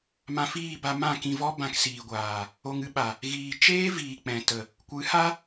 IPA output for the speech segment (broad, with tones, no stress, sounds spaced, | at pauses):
m ã˧ f iː˦˨ b a˧ m ã˦˨ k ĩ˧ v ɔ˦ b ã˧ k s iː˨ ɡʷ aː˨ | o˧ ŋ ɨ˦ ɓ a˨ | ɣ iː˨ t͡ʃ eː˦ v iː˨ k͡p ɛ̃˨ t ə˨ | kʷ ɨ˨˦ h a˦